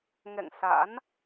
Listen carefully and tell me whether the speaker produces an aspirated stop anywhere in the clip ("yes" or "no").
no